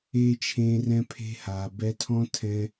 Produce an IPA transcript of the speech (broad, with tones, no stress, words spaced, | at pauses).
eː˦t͡ʃʰẽː˧ rɛ̃˦pʰe̤˦ha˨ bɛ˧tʰɔ̃˦tʰɛ̃˧